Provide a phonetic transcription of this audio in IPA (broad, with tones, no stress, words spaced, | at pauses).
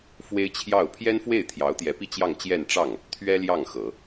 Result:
fwe˥ɪ̯t͡ɕʰjɑ˥˩ʊ̯ pʰjɛ˥nfwe˥˩ɪ̯ t̪ʰjɑ˧˥ʊ̯t̪jɛ˧˥pi˥˧ t͡ɕjɑ˥˧ŋt͡ɕjɛ˥˧n ʈ͡ʂɑ˥˩ŋ | t̪ʰɥɛ˥ ljɑ˥˩ŋxɤ˨˩˦